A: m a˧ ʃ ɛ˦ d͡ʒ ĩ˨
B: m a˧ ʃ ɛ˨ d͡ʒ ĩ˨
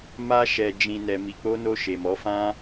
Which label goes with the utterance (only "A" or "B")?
B